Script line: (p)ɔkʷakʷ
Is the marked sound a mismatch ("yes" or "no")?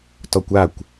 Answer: yes